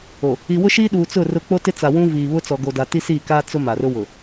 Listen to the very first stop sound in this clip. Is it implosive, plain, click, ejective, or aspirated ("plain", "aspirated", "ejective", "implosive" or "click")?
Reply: implosive